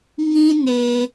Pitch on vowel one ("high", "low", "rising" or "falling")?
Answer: high